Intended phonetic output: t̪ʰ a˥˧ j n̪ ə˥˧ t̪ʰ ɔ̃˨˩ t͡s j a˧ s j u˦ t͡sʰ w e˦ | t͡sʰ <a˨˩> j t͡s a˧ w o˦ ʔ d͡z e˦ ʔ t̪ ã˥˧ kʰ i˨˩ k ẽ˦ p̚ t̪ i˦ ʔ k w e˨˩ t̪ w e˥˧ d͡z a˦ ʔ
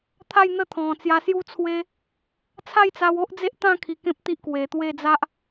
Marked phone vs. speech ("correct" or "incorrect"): incorrect